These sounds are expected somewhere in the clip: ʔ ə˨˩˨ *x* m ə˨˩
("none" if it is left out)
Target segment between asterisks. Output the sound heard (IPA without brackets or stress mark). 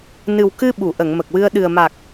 ŋ